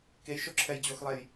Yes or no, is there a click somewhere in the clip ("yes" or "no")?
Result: yes